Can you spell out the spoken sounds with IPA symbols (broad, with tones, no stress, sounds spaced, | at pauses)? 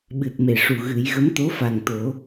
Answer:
ɓ ɨ˨˩ t̚ m e˨˩ ʂ u˨˩ ɣ ɨ˨˩˦ j ɣ ə˧˥ m t̪ o˧˥ f a˨˩ ŋ t̪ o˨˩˦